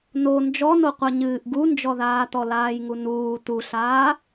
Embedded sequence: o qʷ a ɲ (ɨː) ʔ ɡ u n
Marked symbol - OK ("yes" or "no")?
yes